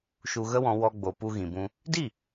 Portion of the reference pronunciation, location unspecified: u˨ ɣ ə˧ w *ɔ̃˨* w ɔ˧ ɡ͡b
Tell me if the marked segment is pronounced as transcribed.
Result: yes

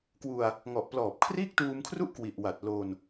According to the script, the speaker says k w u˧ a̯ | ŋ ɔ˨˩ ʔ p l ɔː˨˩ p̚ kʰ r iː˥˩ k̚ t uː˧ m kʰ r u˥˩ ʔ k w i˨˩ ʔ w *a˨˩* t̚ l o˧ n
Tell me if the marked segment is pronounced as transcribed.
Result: yes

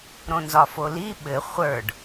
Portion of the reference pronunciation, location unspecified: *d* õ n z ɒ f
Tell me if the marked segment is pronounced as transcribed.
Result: no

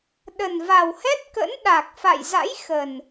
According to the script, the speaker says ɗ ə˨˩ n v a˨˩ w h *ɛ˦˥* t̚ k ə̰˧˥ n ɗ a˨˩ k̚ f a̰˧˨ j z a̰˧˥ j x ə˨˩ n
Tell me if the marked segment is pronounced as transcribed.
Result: yes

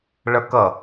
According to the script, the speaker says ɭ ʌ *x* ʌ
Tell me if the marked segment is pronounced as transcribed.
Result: no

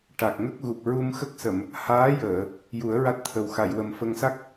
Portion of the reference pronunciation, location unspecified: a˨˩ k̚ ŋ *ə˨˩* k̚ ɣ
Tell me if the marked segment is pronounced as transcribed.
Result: no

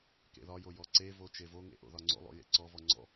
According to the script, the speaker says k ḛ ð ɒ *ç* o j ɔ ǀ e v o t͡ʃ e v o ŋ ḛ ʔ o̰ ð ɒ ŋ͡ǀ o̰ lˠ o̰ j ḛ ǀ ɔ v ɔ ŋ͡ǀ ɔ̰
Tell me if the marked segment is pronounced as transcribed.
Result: no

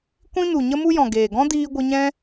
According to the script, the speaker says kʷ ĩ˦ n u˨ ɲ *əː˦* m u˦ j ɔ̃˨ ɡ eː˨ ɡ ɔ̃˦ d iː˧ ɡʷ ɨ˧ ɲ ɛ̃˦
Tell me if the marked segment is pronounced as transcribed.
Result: no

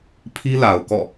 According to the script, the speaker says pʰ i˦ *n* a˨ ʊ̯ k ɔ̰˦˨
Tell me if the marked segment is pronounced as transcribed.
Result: no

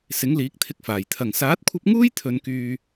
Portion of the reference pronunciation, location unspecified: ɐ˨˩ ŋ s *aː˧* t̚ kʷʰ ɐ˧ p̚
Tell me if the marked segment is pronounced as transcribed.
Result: no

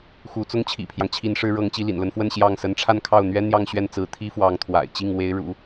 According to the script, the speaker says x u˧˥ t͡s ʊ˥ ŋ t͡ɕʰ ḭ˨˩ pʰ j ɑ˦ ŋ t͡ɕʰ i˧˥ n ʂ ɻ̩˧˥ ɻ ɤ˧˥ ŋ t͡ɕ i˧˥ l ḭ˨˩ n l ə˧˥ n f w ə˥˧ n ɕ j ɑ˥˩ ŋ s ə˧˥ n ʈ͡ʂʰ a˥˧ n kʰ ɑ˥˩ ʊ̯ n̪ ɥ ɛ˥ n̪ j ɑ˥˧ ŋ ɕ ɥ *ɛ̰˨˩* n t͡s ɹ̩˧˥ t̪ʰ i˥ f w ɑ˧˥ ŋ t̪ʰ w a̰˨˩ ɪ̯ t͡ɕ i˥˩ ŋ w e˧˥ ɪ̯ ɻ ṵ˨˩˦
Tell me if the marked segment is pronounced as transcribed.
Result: no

